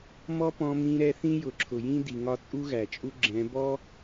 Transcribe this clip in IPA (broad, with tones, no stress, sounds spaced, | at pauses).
m ɔ˦ p ɔ̃˧ m ĩ˧ ɾ ɛ˧ θ ĩ˦ j ʊ˨ ǁʰ ʊ˨ j ĩ˦ d i˨ ŋ ɒ˧ t͡sʼ u˦ ɣ æ˨ t͡ʃʼ u˦ ɡ͡ǁ ɛ̃˨˦ b ɔ˦